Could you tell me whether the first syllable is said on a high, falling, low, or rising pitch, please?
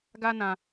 high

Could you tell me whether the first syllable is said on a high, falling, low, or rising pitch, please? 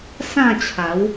falling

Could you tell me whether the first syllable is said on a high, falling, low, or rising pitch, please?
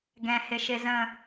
low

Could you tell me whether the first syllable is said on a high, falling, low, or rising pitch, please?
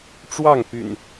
falling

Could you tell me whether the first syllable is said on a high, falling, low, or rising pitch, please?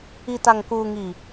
low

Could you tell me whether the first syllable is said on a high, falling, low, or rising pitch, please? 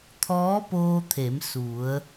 rising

